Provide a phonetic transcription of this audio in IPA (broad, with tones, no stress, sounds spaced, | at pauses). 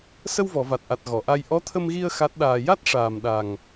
s ə˧ w v ɔ˨˩˨ v a˨˩ t̚ ʔ a˨˩ t̚ ɣ ɔ˨˩˨ ʔ a˧ j ʔ ɔ˧˥ t̪ʰ ə˧ m ɣ i˧ ə̯ x a˦˥ t̚ ɗ aː˧ j a˦˥ t̚ ʂ aː˨˩ m ɗ a˨˩ ŋ